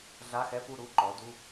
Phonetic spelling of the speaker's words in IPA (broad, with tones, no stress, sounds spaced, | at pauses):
ɮ a˧˥˧ x ɛ˧˥˧ p u˥˨ ɾ u˧˥˧ ǃ ɔ˩˥ d u˧˥˧